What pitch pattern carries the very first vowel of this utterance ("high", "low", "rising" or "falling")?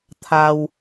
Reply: low